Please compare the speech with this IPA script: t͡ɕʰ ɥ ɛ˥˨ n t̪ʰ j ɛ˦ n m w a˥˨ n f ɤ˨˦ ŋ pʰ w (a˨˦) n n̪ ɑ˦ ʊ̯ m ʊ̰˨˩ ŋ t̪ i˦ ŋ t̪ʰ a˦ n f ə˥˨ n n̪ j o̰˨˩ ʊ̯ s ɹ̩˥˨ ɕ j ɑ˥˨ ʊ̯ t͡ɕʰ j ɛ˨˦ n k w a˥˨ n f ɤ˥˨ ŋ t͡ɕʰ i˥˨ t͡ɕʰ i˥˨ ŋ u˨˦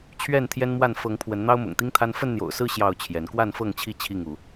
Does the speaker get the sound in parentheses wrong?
yes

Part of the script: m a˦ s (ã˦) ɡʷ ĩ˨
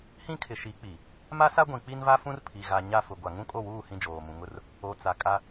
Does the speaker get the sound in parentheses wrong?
yes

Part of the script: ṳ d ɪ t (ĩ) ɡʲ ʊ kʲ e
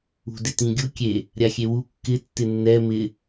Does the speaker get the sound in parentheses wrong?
no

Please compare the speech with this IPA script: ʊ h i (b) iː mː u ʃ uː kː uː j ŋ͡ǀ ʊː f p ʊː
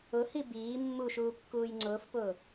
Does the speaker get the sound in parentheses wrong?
no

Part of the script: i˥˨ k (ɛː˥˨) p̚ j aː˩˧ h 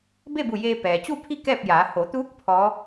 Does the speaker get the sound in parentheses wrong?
no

